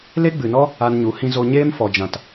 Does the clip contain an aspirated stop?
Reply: no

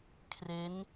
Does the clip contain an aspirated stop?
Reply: yes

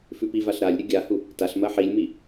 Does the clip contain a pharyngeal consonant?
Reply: yes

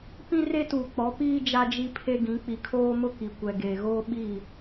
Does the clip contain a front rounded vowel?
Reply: no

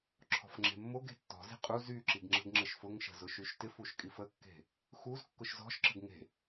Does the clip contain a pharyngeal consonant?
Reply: no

